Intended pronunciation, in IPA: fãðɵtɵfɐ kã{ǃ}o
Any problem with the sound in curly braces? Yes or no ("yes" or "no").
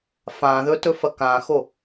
yes